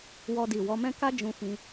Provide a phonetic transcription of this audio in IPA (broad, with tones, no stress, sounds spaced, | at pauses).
w ɔ˦ d i˦˨ w ɔ˧ m ɛ̃˦ k a˦ d͡ʒ ũ˧ f ĩ˧